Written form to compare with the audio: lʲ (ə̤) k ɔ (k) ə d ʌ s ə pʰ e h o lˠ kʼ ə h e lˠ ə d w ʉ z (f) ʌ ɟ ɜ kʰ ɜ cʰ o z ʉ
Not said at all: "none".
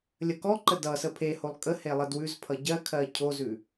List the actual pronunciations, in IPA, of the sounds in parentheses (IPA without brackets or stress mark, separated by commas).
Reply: ə, ǃ, pʰ